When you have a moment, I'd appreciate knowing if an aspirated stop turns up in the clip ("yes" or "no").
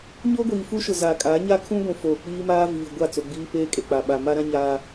yes